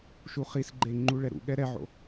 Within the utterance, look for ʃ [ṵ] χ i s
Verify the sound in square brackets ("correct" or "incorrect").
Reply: incorrect